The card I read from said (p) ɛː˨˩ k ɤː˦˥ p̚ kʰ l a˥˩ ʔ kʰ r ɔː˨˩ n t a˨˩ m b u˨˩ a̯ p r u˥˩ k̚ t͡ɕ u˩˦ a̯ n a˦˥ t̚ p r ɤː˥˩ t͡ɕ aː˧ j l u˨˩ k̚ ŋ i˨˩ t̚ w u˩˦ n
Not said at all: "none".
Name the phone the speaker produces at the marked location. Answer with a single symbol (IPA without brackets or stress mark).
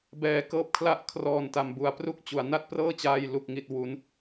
b